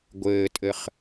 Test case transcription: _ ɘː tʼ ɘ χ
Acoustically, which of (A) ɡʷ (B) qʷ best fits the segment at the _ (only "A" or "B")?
A